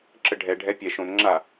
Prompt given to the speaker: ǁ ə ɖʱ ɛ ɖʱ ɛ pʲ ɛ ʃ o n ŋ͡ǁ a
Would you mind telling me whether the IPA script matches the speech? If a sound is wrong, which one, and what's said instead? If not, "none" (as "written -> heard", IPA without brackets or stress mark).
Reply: o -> õ